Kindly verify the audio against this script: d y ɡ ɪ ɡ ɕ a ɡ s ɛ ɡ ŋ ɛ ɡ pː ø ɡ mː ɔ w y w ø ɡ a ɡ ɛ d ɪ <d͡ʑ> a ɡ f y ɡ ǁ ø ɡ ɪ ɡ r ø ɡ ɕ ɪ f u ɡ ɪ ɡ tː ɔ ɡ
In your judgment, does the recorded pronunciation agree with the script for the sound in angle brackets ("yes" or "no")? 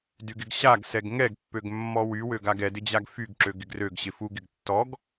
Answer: yes